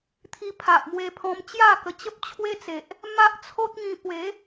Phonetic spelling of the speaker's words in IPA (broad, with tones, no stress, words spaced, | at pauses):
t̪ʰi˧pʰa˨ʔmwe˧pʰɔ̃˧m t͡ɕja˥˧kə˧t͡ɕə˦p̚ t͡ɕʰwe˦t͡se˨ʔ | ma˦ʔt͡sʰo˦t̚ŋĩ˧ pwe˨˦